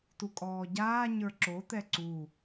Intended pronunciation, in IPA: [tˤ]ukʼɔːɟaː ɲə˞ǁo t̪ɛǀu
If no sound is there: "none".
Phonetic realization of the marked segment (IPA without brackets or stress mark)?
t